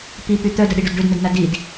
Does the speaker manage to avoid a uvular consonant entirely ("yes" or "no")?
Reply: yes